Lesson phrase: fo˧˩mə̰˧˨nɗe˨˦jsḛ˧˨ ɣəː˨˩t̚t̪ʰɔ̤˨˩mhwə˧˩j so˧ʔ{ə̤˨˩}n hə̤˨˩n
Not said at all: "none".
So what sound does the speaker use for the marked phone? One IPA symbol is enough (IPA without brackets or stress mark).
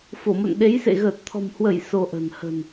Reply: ə̤˨˩